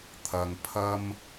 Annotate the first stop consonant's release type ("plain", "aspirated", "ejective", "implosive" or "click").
aspirated